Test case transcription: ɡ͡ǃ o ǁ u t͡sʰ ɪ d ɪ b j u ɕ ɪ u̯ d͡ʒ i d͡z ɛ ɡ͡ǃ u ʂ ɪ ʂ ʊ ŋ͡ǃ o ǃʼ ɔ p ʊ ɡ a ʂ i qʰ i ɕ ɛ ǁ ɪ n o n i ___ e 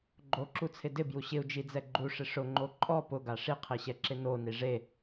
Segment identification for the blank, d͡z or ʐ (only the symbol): ʐ